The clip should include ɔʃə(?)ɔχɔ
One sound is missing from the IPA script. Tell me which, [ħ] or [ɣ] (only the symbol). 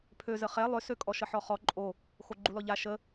ħ